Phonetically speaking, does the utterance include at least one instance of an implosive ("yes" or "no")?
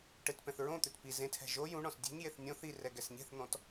no